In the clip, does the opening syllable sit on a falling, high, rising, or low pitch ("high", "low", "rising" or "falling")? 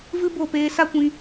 high